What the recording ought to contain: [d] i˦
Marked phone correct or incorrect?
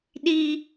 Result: incorrect: ɗ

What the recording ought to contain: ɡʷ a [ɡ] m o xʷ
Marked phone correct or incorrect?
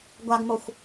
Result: correct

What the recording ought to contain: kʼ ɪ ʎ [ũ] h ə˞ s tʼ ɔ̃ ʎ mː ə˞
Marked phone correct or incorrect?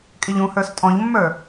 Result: correct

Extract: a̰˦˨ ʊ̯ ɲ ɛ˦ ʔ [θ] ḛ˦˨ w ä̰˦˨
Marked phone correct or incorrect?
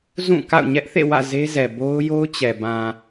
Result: correct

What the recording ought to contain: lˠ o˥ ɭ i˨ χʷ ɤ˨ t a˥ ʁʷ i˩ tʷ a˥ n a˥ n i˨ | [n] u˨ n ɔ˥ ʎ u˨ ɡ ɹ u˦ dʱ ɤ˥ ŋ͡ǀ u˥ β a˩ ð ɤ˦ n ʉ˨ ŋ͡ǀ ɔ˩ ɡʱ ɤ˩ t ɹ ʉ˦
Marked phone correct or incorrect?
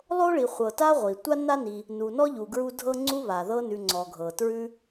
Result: correct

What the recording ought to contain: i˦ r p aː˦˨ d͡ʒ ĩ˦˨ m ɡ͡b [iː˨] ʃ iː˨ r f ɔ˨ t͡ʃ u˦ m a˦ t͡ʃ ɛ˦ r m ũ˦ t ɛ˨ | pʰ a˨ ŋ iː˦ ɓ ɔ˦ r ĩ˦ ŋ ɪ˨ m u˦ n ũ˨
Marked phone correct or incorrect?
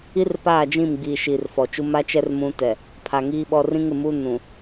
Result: correct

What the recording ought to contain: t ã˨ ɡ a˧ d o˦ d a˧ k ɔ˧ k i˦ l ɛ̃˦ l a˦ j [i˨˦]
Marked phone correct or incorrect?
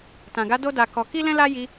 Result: incorrect: i˧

